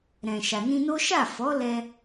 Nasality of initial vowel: nasal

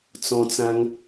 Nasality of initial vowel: nasal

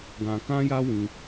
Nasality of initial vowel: nasal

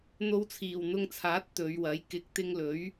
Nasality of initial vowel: oral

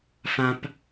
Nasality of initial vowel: nasal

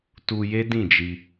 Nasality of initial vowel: oral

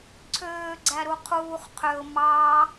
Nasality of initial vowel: oral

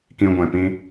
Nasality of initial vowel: nasal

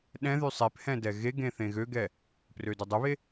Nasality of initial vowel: nasal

